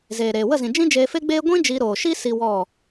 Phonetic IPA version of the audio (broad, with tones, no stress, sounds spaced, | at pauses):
z eː˨ ɾ eː˨ w ə˦˨ z ĩ˨ d͡ʒ ĩ˦ d͡ʒ eː˧ f e˦ ɡ͡b eː˦ ɡʷ ĩ˦ d͡ʒ i˧ ɾ oː˨ ʃ i˦ s i˦ w ɔ˦˨